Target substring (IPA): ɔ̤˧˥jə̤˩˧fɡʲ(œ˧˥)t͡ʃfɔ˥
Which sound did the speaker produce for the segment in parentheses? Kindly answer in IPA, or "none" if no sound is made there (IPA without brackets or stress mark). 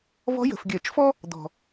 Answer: œ˧˩˧